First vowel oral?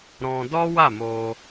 no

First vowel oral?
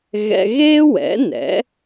yes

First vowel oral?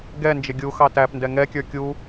yes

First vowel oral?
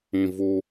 no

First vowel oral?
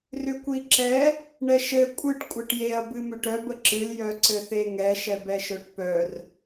yes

